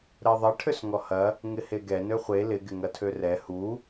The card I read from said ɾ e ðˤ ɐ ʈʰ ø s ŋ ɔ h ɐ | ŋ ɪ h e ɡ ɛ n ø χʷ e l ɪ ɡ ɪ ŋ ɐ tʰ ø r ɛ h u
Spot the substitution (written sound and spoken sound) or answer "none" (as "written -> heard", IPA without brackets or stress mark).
none